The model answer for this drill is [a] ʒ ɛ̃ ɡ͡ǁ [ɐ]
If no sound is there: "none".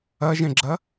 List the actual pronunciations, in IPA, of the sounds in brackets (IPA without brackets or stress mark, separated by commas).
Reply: ɐ, ɐ